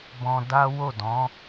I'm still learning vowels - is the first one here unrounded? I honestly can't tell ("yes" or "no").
no